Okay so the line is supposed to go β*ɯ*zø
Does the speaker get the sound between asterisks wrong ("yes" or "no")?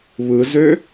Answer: no